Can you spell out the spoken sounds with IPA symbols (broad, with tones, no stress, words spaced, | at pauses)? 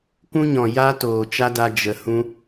kũ˦ɲɔ̃˨ ja˦ toː˨t͡ʃa˦da˧ d͡ʒə˨ hũ˧